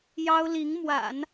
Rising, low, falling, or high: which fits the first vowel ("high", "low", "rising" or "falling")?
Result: high